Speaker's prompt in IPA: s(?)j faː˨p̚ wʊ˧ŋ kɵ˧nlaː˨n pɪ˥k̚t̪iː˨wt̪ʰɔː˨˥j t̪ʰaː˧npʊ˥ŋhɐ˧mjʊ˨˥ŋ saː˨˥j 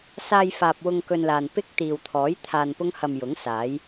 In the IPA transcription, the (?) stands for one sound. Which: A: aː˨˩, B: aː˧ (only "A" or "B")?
B